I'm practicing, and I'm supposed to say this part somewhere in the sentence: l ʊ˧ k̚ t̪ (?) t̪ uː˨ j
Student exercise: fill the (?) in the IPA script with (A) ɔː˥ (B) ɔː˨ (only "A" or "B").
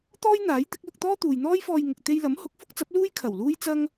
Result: A